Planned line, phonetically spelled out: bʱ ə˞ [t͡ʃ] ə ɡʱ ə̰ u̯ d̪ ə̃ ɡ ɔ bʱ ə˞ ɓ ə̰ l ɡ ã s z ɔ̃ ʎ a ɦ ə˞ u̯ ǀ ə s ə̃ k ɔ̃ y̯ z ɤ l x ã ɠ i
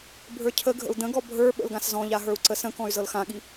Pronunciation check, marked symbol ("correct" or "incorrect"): incorrect